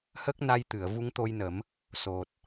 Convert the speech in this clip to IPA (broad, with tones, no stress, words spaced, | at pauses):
hə˦˥k̚na˧jt̪ɨ˨˩˨ə̯ vu˧˥ŋt̪o˧jnə˨˩˦m | so˨˩t̚